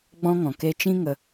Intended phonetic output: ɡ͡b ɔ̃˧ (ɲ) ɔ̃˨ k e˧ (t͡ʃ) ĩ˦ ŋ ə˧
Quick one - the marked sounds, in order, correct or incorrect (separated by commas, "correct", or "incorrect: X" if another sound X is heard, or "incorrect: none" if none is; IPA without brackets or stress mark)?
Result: incorrect: ŋ, correct